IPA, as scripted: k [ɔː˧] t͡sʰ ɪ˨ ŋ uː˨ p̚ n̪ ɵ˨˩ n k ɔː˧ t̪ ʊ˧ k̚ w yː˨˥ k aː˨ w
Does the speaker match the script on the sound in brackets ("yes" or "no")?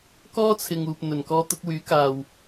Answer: no